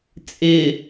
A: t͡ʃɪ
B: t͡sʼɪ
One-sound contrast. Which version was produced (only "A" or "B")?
B